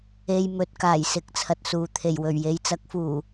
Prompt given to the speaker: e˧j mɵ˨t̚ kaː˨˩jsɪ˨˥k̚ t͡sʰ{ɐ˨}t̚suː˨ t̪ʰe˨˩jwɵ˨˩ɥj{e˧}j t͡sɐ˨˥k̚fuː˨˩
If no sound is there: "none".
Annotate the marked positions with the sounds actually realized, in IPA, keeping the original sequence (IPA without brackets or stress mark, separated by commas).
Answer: ɐ˨, e˨˧